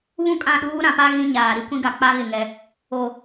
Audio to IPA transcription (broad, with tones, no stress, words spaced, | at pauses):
βũ˦˨kʼã˦˨ɗuː˦ ɾã˨pa˦ ɣĩ˦ɲaː˨ ɾi˦kʷĩ˦ɡa˨k͡pa˦ ɣɪ˨ŋɛ˨ | o˨